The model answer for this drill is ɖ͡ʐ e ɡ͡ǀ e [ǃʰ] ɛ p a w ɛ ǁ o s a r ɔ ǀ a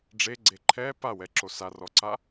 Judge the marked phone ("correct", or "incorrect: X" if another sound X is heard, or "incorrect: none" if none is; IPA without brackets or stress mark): correct